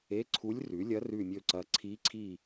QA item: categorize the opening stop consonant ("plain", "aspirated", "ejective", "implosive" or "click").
click